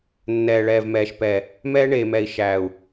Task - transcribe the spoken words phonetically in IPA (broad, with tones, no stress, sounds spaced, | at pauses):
nː ɛː˨ ɭ ɛː˨ v m ɛː˨ ʃ p ɛ˨ | m ɛː˦ ɳ eː˨ m ɛ˨ i̯ ʃ æː˨ u̯